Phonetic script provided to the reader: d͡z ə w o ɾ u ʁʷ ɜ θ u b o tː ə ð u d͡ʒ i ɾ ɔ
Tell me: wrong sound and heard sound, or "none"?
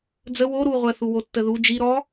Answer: b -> w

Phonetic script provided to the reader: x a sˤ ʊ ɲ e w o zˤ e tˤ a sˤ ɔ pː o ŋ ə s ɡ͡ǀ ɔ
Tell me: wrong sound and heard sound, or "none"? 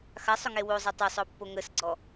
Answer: ɲ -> ŋ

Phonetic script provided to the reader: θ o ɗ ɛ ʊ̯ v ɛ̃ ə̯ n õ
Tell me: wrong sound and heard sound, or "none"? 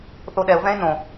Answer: ə̯ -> ɪ̯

